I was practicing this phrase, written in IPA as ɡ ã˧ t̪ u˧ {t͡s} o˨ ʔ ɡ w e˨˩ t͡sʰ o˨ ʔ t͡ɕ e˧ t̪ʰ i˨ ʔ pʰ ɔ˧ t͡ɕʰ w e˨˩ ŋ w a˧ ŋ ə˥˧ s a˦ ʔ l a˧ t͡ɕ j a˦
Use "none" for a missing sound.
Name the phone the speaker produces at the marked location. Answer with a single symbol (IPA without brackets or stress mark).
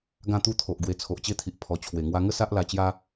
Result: t̪ʰ